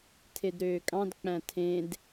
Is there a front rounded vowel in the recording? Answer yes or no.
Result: yes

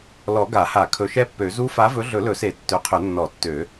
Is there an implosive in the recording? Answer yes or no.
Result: no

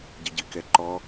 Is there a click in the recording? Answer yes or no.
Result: yes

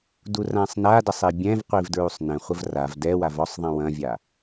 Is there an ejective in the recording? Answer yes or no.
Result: no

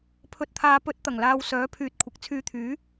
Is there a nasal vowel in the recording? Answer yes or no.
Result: no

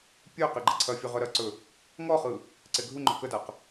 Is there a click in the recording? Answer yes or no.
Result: yes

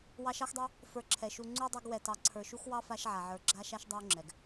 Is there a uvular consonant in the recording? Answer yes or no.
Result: no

